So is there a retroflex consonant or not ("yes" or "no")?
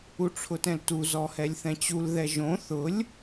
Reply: yes